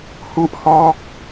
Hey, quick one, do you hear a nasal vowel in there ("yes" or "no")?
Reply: no